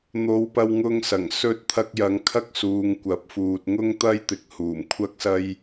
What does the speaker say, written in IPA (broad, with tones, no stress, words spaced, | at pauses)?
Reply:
n̪o˨˧w pɐ˧wŋʊ˧ŋsɐ˨˩ŋ sɵ˧t̚ t̪ʰɐ˧k̚jɐ˨˧ŋ kʰɐ˥k̚suː˨ŋkʷɐ˨˥p̚fuː˨t̚ ŋʊ˥ŋt̪ɐ˥j t̪ɪ˨k̚huː˨˩m kʷʰɐ˧k̚sɐ˧j